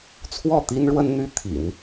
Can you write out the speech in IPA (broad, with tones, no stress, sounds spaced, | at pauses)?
t͡sʰ w ɔ˥˩ t̪ i˥ n ɻ w ə˥ n n̪ y˥ t̪ʰ ḭ˨˩˦ n